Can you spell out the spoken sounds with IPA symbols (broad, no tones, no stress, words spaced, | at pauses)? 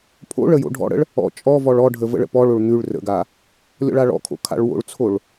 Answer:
pʰo̰ɭə jo̰ɖʱɔ̰ɽə̰ɭ | ɔ̰ t͡ʃʼɔvɔɭ ɔɖʱə və̰ɭə̰pɔɭoɭ n̪ʉɭ rə̰ɡa | lʲɔ̰ɭaɭɔ̰kʰo̰ kʰa̰ɭwo̰ɭt͡sʰoɭ